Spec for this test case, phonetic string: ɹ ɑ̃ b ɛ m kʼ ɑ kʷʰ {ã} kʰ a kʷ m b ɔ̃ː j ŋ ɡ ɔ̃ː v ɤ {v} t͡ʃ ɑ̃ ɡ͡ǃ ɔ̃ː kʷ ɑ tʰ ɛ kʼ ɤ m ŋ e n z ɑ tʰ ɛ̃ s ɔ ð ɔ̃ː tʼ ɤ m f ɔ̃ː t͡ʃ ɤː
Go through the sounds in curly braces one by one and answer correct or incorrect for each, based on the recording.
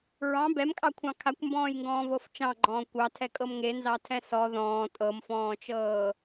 incorrect, incorrect

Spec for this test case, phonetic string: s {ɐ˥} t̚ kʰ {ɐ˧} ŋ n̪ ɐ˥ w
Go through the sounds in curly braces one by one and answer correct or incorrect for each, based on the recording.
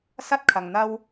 correct, correct

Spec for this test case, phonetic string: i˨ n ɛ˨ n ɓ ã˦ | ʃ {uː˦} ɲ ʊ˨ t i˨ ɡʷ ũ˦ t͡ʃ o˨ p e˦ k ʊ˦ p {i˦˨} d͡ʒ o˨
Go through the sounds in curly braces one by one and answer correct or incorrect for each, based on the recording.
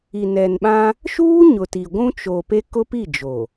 correct, correct

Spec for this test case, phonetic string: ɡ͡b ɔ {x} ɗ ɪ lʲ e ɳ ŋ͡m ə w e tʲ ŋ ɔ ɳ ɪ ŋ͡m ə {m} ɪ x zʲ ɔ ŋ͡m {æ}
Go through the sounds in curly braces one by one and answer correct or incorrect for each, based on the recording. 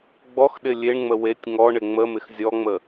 correct, correct, incorrect

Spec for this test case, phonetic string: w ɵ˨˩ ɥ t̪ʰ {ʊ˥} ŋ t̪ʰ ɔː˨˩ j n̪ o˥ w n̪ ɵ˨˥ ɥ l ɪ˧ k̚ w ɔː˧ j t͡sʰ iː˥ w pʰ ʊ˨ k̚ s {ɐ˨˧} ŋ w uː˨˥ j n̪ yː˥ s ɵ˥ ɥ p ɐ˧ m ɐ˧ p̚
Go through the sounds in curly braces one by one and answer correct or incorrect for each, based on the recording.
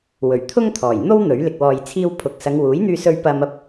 correct, correct

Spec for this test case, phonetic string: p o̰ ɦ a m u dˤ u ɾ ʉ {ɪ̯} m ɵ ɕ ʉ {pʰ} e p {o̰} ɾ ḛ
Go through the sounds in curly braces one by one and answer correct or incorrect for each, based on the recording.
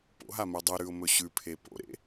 incorrect, correct, correct

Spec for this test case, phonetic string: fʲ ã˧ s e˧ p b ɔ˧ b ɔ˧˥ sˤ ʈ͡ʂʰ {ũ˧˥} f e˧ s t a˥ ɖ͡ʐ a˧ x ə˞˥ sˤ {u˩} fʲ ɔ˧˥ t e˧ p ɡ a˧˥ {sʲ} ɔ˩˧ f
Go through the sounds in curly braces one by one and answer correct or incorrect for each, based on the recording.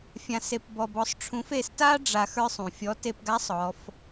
correct, incorrect, incorrect

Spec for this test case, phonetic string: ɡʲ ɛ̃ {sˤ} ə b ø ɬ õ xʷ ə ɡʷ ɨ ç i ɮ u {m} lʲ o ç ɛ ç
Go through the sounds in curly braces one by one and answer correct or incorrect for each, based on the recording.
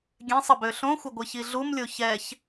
correct, correct

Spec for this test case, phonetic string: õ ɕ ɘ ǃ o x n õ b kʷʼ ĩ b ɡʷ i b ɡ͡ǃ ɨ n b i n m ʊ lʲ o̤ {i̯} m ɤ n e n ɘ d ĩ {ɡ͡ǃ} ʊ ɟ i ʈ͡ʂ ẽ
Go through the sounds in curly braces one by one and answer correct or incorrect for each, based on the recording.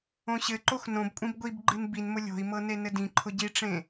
correct, incorrect

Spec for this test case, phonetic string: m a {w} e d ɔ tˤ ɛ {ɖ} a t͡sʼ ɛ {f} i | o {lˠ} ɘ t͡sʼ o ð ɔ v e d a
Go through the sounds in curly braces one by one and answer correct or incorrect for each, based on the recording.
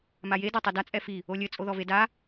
incorrect, incorrect, correct, incorrect

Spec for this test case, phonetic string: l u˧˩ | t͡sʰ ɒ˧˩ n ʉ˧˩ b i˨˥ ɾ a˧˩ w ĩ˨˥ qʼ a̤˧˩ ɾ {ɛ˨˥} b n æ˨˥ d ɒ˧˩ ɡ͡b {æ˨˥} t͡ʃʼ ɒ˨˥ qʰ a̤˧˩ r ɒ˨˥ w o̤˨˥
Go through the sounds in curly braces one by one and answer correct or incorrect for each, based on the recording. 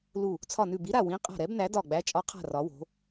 correct, correct

